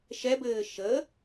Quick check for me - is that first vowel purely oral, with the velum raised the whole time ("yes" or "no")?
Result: yes